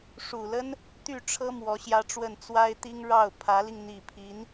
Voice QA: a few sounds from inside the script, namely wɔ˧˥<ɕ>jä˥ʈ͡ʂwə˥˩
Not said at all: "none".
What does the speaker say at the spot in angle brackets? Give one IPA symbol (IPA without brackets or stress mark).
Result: ɕ